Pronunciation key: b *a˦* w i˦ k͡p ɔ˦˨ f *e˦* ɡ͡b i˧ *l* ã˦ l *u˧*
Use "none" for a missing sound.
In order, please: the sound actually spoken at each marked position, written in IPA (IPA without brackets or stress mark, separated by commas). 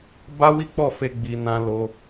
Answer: a˦, e˧, n, o˧